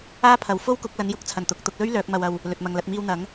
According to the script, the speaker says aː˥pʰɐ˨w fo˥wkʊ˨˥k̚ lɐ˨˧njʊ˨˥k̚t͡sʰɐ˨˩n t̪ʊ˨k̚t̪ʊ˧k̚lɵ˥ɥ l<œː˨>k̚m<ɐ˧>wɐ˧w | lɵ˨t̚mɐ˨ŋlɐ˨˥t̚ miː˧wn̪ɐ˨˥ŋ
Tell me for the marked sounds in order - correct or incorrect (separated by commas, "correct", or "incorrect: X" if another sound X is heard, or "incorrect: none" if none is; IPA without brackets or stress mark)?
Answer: incorrect: œː˨˥, correct